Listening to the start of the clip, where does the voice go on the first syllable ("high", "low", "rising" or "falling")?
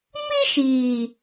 high